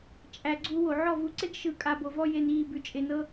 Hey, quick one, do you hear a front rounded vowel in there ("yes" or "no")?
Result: no